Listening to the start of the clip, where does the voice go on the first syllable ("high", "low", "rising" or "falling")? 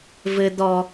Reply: high